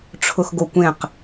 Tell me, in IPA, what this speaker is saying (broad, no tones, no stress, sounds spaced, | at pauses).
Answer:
ʈ͡ʂʰ ʊ x ɡ o kʷ ẽ q